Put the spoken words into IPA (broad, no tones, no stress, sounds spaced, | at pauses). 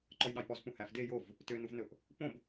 ǃ ɔ j ɗ ɑ j p ɔ z p ũ h æ f d e j o v | t ø n u v n ɵ ʔ | p õ b